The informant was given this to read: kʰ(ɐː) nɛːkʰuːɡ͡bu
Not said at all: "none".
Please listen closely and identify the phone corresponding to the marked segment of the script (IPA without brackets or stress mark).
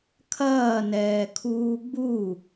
ɐː